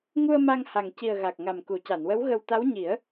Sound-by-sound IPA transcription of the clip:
ŋ u˧ ə̯ m a˧ ŋ h a˨˩ ŋ c i˨˩ ə̯ ɣ a˨˩ k̚ ŋ a˨˩ m k u˨˩˨ c a˨˩˨ n w ə˧˥ w ɣ ə˧ w t̪ a˧˥ w ɲ i˨˩˦ ə̯

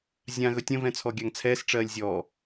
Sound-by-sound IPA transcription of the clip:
zʲ ã ɣ ɵ tʲ ə̃ v ɛ̃ t͡sʰ ɔ ɡʲ a ŋ t͡sʰ ɛː s ʈ͡ʂ ɜː lʲ zʲ ɔ

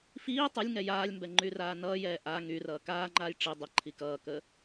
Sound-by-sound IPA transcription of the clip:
f iː tˤ ɘ lʲ ŋ ɛ j aː lʲ m b ɛ ŋ͡ǃ y r aː n ʌː j ɛː ʔ a ŋ y r ʌː k aː ŋ͡ǃ aː j ʈ͡ʂ i dˤ ɘ ǃʰ i k ʌː k ə

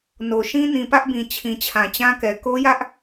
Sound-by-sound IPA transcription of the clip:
n o˨ ʃ ĩ˦ n ĩ˨ p ä˦ ʔ b ĩ˨ t͡ɕʰ ĩ˨ t͡ɕʰ ã˨ t͡ɕ ã˦ k ɛ˨ k o˦ j ä˦ ʔ

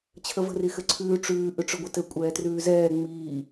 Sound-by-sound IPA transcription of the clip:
t͡ɕʰ ə v ə̤ r i x ɘ ǀʰ ʉː ʈ͡ʂ ʉː ʔ ʉ ʈ͡ʂ ʏ ɡʷ ɘ t ɘ kʷʼ ɛː t r ʉː z ɛː ŋ͡m iː

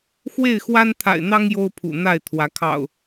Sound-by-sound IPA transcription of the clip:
x w e˥˨ ɪ̯ x w a˦ n t̪ʰ a̰˨˩ ɪ̯ n̪ ɑ˦ ŋ j o˦ ʊ̯ pʰ ṵ˨˩ n̪ a˥˨ ɪ̯ t̪ʰ w ä˨˦ kʰ ɑ̰˨˩ ʊ̯

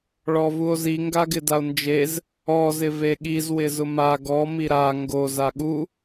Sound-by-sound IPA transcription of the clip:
ɭ ɔ v u o̯ z i ŋ ɡ a ɡ ɪ d a o̯ n d͡ʒ e z | ɔ z ɪ v e ɠ i z w ɪ z ʊ m a ɡ ɔ m i ɾ a ŋ ɡ o z a ɠ u

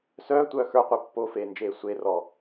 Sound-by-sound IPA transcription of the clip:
s œː tʷ œː x ə˞ qʷ ə˞ pː o f eː n d͡ʒ eː sʷ e r ɔ

